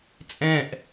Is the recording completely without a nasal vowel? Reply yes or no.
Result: no